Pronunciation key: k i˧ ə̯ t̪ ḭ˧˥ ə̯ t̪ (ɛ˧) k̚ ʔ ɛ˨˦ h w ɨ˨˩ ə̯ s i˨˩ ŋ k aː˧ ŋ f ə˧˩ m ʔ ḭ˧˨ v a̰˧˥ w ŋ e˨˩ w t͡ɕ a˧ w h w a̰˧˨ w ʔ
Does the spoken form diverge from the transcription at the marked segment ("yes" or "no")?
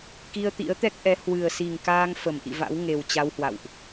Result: yes